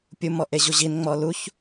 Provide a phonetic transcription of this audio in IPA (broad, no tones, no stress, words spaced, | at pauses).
pʲum ɔʔeʑuʑin ŋ͡mɔluç